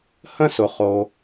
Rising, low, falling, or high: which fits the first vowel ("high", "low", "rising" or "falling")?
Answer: high